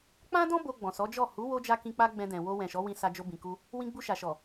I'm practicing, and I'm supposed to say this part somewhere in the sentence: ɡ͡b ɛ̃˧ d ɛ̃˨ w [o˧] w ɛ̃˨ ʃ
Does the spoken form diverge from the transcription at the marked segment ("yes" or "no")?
no